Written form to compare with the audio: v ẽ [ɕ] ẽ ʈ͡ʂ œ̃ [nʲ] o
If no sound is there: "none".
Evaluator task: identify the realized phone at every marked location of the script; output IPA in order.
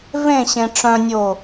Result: ɕ, nʲ

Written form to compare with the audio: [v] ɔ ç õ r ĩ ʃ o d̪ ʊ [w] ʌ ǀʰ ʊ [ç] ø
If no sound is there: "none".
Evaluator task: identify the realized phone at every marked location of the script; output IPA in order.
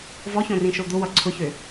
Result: v, w, ç

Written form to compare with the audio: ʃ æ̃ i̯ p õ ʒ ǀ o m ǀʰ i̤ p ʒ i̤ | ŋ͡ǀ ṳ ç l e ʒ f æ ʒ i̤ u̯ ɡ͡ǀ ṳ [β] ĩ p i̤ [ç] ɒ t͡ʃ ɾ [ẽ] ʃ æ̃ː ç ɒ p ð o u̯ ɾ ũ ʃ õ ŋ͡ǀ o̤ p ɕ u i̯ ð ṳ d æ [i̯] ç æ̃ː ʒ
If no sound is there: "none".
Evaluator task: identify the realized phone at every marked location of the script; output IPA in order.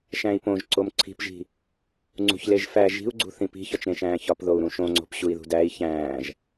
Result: θ, ç, ẽ, i̯

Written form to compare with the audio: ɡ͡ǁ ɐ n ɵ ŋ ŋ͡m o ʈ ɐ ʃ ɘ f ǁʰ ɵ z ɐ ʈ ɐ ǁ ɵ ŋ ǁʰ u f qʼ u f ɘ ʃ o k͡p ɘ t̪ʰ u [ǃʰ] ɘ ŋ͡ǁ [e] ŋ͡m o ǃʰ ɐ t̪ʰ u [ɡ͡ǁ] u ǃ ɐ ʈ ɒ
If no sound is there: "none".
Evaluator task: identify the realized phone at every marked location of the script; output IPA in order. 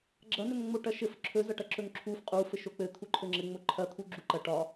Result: ǃʰ, ɘ, ɡ͡ǁ

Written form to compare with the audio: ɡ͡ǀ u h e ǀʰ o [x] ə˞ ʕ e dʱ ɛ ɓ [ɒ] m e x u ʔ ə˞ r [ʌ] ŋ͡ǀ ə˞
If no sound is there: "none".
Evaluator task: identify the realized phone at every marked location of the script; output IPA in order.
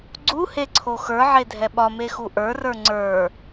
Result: x, ɒ, ə˞

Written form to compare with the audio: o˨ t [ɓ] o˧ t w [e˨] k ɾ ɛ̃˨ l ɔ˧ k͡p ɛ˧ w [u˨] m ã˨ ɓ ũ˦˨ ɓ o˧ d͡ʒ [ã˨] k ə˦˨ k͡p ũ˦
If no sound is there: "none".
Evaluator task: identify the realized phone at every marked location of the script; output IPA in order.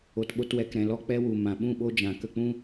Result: ɓ, ɛ˨, u˨, ã˨

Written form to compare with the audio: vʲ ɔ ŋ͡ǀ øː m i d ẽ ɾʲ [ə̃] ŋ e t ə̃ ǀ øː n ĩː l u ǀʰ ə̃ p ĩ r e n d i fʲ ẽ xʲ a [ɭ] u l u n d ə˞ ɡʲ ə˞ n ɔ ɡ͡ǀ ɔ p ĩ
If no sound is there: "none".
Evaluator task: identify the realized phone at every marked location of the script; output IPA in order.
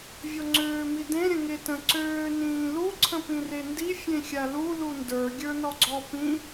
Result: ə̃, l

